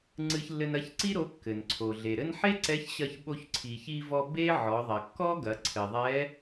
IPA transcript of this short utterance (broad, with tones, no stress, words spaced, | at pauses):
ŋ͡ǀɨ˧çlːɘ˧n ɐ˧˥çǀi˥ɾo˧˥ kːɘ˩nǀʰo˩ ɮe˩ɾɘ˥n ħe˥ǀɛ˧˥çɕɐ˧ç ɓo˧çǀʰi˩çi˧vɔ˧ be˥ ʕɔ˩˧ðˤɐ˩kːɔ˥ɡɐ˩˧ ǀʰɘ˩ðˤɛ˧˥